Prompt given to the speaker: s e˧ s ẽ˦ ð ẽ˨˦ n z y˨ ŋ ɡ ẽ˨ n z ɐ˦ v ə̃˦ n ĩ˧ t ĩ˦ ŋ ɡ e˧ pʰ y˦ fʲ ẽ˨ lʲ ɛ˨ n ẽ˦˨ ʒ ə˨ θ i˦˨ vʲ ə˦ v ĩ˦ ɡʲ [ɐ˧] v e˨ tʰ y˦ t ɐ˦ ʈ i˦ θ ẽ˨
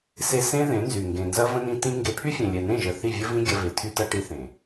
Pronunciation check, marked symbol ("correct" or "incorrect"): correct